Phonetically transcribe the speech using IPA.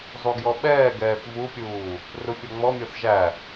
zˤ u ɡ j ɔ ɓ ɛː ɡ ɛː θ v u pʲ uː | r u fʲ ɔ ŋ͡m ɔ mʲ ɔ θ ʒ æ

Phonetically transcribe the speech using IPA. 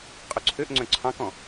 qʼ œ ǀʰ ø ʔ ŋ͡ǀ œ̃ ǀʰ ɑ̃ k ɔ̃

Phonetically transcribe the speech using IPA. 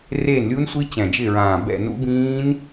r eː˦˨ n lʲ u˦˥ n sʷ i˦˥ t͡ɕ ɛ̃˨˩ d͡ʒ ɪ˦˨ ɹ ãː˨˩ b ɛ̰˦˨ n ṵ˦˥ b ĩː˦˥ n

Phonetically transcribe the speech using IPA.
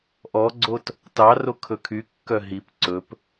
ʔ ɔ ɡ͡ǀ o t | t ɑ r o kʰ ɵ kʰ y kː œ ɦ i p ǀ ɵ p

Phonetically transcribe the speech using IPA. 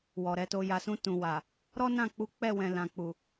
w ɔ˨ ɾ ɛ˨˦ t o˧ j a˨ s ũ˧ t ũ˨ w a˨ | ɾ ɔ˦ n ã˦˨ k͡p u˨˦ k͡p ɛ˦˨ w ɛ̃˨ l ã˨ k͡p u˨

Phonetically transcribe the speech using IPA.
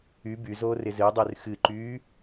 y b y z oː r ɪ z ɨ dˤ y r x ɨ ǃ yː

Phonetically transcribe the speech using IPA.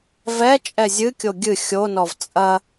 v ɛ t͡ʃʼ ɛ zʲ ɨ kʲ o ɡʲ ɨ xʲ o n ɔ v t͡sʼ ɐ

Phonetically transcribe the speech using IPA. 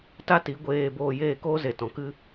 t a˦ t i˨˦ ɡʷ eː˧ b oː˧ j eː˦˨ k oː˦ z e˨ t ɔ̃˨ k ɨ˦

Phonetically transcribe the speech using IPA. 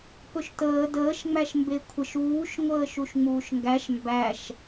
p ɵ ʃ t əː d əː ʃ ŋ͡m æ ʃ m b e kʷʰ ə ʃ uː ʃ ŋʷ əː ʃ u ʃ ŋ͡m uː ʃ ŋ ɡ æ ʃ m b æ ʃ

